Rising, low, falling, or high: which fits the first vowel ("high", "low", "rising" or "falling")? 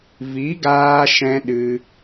rising